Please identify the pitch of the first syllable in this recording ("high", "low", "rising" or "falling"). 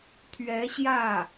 rising